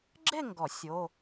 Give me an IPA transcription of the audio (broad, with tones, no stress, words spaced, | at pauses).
ɡ͡ǁe˥˧ŋɡɔ˨˩˦ sʲo˧˥˧